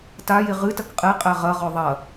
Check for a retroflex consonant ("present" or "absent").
absent